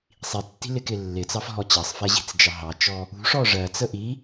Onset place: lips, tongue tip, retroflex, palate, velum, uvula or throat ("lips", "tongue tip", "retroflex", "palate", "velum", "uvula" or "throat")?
tongue tip